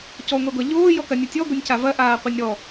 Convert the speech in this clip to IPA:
c ɔ ŋʷ ɛ ɡʷ a ʎ oː j ɔ k ɐ nʲ ɔ tʲ ɔ ɡʷ ɨ nʲ c a v ɐ ʔ aː qʷ ɨ nʲ ɾ ɔ

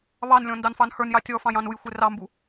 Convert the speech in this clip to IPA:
β ɑ n lʲ ɔ̃ n d ɑ n f ɑ n h ə˞ n j ɑ tʲ ɔ f ɑ̃ j ɑ̃ n u j xʷ ɪ r ɑ m b u

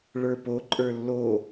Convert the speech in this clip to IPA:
ɭ ə˞ p o ǃʼ ə˞ lː o

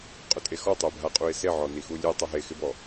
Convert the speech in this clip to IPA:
qʼ ʊ tʼ e x ɔ tˤ ɛ bʱ a qʼ u ɪ̯ s e ʕ ɔ n i x u lʲ e tˤ ʊ ɦ e x ɪ b ɔ

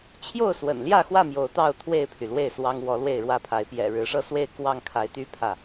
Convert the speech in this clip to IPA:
t͡ɕʰ j o˥˨ ʊ̯ s w ə̰˨˩ n l j ä˥˨ x w ä˥˨ m j o˨˦ ʊ̯ t̪ ɑ˥˨ ʊ̯ t̪ʰ w e˥˨ ɪ̯ pʰ y˩ l w e˥˨ ɪ̯ s w ɑ˦ ŋ w ɔ˨˦ l w e˥˨ ɪ̯ ɻ w ä˥˨ pʰ a˨˦ ɪ̯ p j ɛ̰˨˩ ɻ ɻ̩˨˦ ʂ ɤ˦ s w e˥˨ ɪ̯ k w ɑ˥˨ ŋ kʰ a˨˦ ɪ̯ t̪ y˦ pʰ ä˥˨

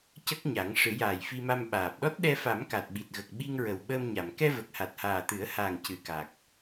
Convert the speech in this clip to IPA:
c ə˦˥ k̚ ɲ a˨˩˦ ŋ ʂ ɨ˨˩˦ j aː˨˩ j f i˧ m a˧ m ɓ aː˨˩ p̚ ɗ ɔ˦˥ t̚ ɗ ɛ˧ f a˨˩˦ m k a˨˩ t̚ ɓ i˨˩ t̚ ɣ ə˨˩ k̚ ɓ i˧ ŋ ɹ ə˨˩ w ɓ əː˧ m ɲ a˨˩˨ m k ɛ˧ v ə˨˩ k̚ h a˨˩ t̚ h aː˨˩ t̪ ɨ˨˩˦ ə̯ h aː˨˩ ŋ c ɨ˨˩ k a˨˩ k̚

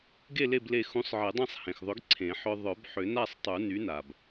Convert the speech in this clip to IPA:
ɡ e˥˨ l e˥˨ b l e˧˩ x ũ˨˥ sˤ ʕ e˨˩˦ dˤ ã˥˨ sˤ h ẽ˩ x ðˤ ʏ˨˥ ɡ ǀʰ ẽ˨˩˦ ħ œ˦ ðˤ œ˨˩˦ b ħ ʏ˨˩˦ n a˥˨ sˤ tˤ u˨˩˦ n y˨˥ n a˩ b

